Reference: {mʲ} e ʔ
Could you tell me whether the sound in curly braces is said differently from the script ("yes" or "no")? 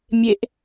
no